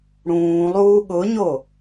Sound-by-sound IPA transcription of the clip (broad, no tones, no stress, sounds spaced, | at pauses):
ɽ ũː lˠ uː ɠ ʊ ɲ o